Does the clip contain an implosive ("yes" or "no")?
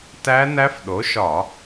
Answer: yes